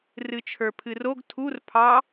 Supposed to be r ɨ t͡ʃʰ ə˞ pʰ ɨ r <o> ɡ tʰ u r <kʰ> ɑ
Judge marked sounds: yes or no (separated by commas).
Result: yes, no